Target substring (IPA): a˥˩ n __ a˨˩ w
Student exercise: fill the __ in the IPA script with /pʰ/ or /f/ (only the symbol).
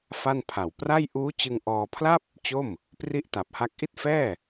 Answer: pʰ